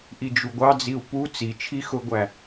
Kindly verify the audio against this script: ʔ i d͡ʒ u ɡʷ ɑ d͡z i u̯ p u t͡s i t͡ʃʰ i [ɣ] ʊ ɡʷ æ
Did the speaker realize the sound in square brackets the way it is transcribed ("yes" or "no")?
no